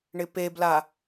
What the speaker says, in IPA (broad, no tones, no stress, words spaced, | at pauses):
ɳɪpebla